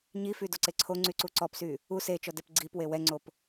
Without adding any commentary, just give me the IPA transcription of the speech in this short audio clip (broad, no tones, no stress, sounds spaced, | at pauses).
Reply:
ɲ i f y d o ǀ e ǀʰ o ŋ͡ǀ y ǀ u ǀ ɔ p s y | u s e t͡ʃ ɔ d ɛ p ɡ͡ǀ i p w e w ɛ ŋ͡ǀ o p